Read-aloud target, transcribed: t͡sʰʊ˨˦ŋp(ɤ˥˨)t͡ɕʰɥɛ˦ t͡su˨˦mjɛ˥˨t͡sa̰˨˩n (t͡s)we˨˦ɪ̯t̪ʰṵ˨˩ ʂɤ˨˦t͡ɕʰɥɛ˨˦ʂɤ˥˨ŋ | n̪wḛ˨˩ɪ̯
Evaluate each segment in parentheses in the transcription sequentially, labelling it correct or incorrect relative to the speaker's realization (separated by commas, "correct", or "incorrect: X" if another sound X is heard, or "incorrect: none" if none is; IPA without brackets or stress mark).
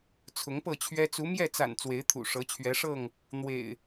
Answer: correct, correct